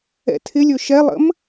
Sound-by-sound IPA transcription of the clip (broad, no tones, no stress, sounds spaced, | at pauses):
ɛ̰ tʰ ɪ lʲ ɵ ʃ ɛ lˠ ə̰ m